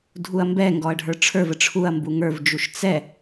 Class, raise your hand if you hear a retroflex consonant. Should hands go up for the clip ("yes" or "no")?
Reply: yes